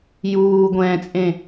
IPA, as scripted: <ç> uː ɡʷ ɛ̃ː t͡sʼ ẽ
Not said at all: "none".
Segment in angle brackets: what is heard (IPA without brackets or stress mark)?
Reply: j